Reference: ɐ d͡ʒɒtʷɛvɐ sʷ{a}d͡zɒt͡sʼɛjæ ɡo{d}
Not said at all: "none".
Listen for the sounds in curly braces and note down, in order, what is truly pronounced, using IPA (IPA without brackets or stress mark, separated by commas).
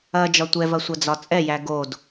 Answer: ɐ, d